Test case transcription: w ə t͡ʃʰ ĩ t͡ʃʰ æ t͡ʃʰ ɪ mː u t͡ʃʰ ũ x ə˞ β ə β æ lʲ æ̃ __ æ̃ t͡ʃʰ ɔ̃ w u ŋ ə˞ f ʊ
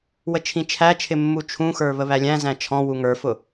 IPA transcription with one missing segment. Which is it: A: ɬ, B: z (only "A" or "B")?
B